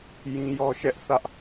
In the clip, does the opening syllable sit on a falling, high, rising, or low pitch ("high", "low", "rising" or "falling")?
high